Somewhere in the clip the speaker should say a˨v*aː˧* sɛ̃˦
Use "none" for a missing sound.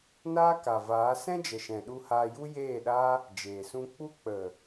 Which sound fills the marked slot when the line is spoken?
aː˨˦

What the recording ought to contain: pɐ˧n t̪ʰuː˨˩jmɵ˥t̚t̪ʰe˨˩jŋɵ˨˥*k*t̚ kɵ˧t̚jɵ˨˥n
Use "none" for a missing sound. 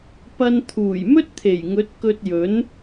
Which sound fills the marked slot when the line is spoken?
none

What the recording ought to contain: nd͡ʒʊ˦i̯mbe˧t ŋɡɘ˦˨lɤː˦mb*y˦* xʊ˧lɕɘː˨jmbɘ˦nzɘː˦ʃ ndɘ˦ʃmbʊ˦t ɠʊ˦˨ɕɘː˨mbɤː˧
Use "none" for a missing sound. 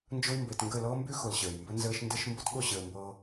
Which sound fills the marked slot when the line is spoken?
y˦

